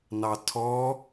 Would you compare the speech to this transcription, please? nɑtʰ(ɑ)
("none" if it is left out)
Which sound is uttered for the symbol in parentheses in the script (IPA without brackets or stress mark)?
ɔ